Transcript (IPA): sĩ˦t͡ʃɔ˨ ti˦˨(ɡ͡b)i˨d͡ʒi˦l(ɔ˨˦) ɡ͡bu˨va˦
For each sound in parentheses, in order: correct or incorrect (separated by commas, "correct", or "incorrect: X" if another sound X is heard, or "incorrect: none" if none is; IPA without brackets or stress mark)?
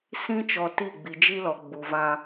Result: correct, incorrect: ɔ˨